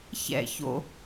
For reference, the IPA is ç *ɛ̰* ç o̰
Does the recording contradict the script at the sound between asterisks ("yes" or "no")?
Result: no